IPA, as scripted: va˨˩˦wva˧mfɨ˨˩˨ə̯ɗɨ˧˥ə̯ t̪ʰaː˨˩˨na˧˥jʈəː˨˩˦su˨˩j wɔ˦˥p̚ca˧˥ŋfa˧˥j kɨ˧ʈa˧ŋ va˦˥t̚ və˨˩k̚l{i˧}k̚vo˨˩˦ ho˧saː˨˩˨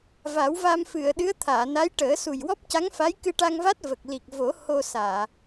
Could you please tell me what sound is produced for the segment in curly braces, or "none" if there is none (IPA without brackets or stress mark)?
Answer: i˨˩